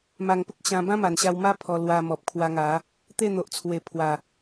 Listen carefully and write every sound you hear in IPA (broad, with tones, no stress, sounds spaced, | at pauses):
m a˨˩ ŋ p ə˦ k̚ ɕ ã˧ b ã˦ m a˨˩ n ɕ a˧ w m a˦ pʰ ɔ˧ l w a˧ m ɔ˨ p̚ kʰ w a˧ ŋ a˨˦ | t̪ e˥˧ n̪ o˨ ʔ t͡sʰ w e˨˩ pʰ w a˨˩